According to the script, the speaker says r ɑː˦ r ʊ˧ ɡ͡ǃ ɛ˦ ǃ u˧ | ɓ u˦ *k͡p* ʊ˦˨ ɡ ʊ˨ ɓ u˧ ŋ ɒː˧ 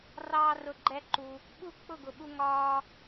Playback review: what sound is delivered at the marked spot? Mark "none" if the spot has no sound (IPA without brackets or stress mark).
k͡p